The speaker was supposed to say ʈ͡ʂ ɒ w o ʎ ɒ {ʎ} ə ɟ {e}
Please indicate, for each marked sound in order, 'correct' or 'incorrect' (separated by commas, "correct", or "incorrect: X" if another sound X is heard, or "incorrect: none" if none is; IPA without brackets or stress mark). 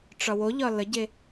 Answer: incorrect: l, correct